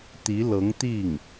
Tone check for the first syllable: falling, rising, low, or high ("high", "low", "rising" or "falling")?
rising